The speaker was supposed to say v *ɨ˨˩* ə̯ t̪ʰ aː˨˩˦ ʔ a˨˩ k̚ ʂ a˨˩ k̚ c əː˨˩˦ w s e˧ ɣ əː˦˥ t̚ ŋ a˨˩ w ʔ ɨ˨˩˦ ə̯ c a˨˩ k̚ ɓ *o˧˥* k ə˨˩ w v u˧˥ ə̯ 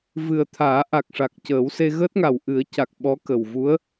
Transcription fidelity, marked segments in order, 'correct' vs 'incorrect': correct, incorrect: ɔ˧˥

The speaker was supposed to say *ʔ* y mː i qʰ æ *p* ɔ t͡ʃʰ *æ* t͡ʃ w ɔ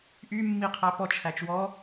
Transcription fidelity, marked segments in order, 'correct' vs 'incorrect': correct, correct, correct

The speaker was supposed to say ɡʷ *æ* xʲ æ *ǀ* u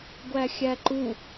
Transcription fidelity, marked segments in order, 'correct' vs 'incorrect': correct, incorrect: ǃ

